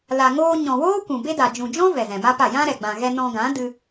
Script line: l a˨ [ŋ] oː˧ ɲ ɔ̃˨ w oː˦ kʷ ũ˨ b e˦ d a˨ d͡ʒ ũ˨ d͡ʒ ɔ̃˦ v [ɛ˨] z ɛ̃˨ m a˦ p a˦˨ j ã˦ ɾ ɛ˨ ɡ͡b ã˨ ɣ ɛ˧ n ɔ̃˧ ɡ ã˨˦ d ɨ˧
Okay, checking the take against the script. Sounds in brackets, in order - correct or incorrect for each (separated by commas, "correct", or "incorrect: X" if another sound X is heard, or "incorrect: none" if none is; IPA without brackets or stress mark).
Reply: correct, correct